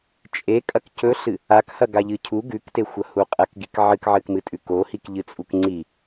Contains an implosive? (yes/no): no